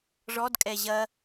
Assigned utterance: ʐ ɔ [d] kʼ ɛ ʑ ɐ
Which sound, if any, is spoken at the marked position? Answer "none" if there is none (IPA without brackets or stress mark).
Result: d